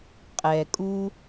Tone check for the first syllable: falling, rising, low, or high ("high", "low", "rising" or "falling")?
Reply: low